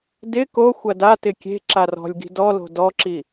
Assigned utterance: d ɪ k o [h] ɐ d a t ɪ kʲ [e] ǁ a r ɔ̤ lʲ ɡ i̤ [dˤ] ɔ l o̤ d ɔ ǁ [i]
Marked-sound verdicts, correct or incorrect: incorrect: xʷ, incorrect: e̤, incorrect: d, correct

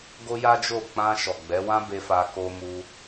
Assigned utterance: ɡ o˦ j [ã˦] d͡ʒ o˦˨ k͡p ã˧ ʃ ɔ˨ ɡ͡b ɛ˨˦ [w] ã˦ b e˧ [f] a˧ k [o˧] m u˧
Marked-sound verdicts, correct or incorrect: incorrect: a˦, correct, correct, correct

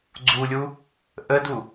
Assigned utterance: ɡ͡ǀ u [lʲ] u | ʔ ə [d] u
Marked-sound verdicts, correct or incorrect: correct, correct

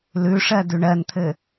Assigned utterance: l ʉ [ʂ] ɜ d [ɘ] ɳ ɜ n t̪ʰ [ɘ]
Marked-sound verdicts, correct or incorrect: correct, incorrect: ʉ, correct

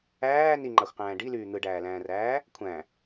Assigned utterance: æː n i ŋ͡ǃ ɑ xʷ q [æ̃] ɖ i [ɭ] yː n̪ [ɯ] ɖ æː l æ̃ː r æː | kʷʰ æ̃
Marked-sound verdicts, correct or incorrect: incorrect: æ̃ː, incorrect: l, correct

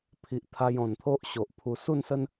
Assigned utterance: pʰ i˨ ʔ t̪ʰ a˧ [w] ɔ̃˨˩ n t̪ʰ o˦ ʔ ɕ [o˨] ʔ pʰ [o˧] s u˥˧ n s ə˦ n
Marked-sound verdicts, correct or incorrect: incorrect: j, correct, incorrect: u˧

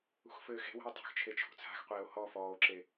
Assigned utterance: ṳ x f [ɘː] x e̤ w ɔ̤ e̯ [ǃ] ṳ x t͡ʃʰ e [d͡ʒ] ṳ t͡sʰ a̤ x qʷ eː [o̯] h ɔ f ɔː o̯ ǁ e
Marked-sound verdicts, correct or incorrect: correct, incorrect: tˤ, incorrect: t͡ʃʰ, correct

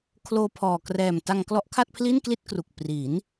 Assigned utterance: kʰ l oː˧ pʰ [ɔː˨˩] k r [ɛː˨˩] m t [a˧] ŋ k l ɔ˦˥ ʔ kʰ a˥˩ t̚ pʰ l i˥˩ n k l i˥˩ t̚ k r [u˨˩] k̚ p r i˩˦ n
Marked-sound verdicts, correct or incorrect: correct, correct, correct, correct

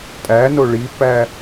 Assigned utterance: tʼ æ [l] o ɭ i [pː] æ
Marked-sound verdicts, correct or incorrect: incorrect: n, correct

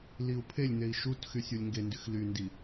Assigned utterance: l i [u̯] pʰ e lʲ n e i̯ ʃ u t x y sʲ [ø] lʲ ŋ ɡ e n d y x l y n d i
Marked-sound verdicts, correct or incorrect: correct, incorrect: u

